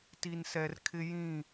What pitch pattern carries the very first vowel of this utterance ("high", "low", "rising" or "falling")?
low